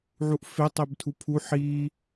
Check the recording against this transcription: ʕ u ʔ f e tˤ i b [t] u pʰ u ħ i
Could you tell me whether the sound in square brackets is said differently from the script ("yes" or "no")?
yes